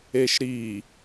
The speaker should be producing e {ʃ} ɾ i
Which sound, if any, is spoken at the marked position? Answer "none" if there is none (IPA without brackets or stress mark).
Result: ʃ